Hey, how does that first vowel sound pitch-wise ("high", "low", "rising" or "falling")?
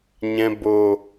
low